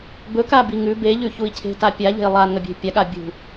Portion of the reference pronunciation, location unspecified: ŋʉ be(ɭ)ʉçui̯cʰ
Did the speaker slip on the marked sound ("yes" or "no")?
yes